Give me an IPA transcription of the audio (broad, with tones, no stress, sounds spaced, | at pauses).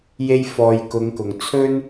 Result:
j e˥ j f ɔː˧ j k ʊ˨˧ ŋ k ʊ˨˩ ŋ t͡sʰ ɵ˥ n